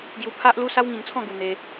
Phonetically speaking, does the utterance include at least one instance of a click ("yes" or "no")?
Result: no